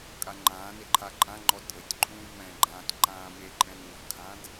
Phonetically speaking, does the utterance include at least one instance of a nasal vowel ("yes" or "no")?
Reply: yes